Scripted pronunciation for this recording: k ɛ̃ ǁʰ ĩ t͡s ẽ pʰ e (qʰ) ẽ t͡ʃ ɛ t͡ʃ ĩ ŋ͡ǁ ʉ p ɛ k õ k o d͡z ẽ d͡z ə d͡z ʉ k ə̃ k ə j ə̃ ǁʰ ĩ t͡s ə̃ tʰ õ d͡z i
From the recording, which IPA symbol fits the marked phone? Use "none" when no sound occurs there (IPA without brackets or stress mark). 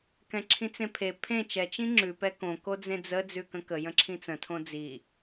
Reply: pʰ